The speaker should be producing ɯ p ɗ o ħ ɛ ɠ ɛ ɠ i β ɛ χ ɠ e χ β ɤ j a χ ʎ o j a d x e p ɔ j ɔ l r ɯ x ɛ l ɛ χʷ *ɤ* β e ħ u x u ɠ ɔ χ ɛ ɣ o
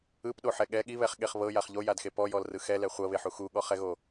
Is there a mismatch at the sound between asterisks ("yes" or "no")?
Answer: no